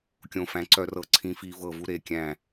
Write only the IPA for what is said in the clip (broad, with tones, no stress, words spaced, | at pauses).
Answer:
kʲõ˧˩fæ̃˨˥ ǀœ˧ rɤ˧˩ ǀʰĩ˨˥fi˧ vɤ˧˩vu˧ ɾe˧˩kʲæ̃˧˩